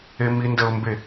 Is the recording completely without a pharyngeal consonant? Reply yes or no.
yes